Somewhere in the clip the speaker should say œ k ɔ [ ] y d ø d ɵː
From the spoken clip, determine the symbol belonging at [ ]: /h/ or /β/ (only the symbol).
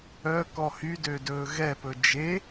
h